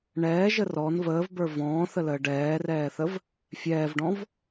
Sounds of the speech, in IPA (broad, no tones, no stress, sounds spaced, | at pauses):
ɳ ɛː ʒ ə r ɔ n v əː v b ə˞ v ɔ̃ː θ ə l əː ɖ ɛː r ɛː θ ə v | fʲ ɛː v ɖ ɔ̃ v